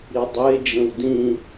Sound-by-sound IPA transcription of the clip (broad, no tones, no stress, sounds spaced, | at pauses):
ɾ i dˤ e d͡ʒ ə̃ w d ĩ